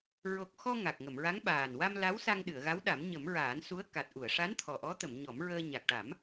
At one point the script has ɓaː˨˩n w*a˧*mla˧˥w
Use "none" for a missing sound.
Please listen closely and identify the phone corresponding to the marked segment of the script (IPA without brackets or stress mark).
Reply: a˧